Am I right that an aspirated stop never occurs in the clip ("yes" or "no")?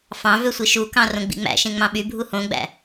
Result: yes